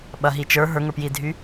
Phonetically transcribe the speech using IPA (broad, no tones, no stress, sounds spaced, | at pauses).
ɓ ɐ ɦ i t͡ʃ ə˞ ɦ ə˞ ŋ ə˞ p j i dʱ y